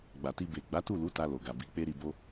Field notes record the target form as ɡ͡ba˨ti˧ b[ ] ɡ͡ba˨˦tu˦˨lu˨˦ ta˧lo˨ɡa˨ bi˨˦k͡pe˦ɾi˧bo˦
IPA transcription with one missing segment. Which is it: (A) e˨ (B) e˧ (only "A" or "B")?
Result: A